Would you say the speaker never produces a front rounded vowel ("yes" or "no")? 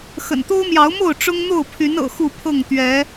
no